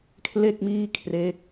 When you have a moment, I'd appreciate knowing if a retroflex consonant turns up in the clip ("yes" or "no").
no